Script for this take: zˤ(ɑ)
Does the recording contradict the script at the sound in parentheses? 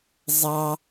no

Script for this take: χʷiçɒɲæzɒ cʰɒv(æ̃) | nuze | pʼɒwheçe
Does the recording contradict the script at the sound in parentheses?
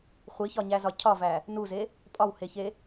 yes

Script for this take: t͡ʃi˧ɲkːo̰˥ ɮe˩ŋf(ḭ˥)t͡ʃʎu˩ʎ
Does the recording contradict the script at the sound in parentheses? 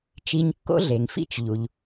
no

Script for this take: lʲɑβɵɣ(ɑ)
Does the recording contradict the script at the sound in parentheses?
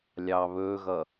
yes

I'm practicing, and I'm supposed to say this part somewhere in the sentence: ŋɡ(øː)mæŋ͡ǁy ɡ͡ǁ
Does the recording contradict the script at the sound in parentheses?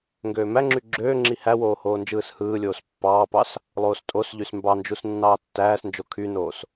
no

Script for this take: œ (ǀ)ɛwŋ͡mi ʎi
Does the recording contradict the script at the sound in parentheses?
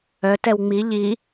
yes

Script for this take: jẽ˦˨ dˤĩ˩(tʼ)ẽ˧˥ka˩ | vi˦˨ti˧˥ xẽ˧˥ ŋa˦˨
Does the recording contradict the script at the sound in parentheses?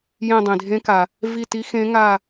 yes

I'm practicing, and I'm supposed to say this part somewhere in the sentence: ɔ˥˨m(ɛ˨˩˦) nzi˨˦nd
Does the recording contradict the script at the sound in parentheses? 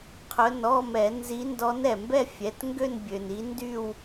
no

